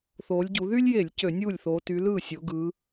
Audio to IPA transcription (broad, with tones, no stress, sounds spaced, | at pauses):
θ oː˨˦ lʲ ɟ u˨˦ ð y˦ lʲ j e˧˩˧ lʲ c ø˧˩˧ nʲ uː˥˩ lʲ θ oː˨˦ t y˨˦ l ɯː˥˩ sʲ o˨˦ ɡ ɯ˨˦